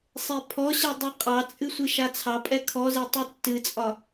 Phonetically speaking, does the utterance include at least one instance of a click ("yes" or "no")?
no